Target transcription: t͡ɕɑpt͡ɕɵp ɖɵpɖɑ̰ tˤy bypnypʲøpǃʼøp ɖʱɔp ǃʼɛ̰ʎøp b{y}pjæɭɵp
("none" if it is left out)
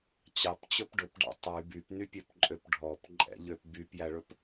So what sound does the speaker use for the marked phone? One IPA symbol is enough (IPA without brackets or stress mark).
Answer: y